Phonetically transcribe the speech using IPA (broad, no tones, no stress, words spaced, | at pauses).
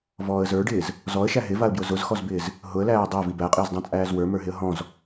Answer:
vɔːə̯zə˞ɖɪːz | zɔə̯ʃæ ɦɪvaə̯bjʊ zʊzxɔzbɪːz | ɦʊə̯læː dˤæ vibæqʼɪːzdˤã t͡sʼæːzwə˞mə˞ɦɪə̯ ɦɔ̃z